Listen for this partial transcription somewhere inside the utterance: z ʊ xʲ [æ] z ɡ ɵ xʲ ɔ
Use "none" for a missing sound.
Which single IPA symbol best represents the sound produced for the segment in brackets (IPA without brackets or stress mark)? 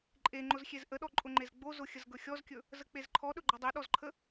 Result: ə